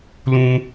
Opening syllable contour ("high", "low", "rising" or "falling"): high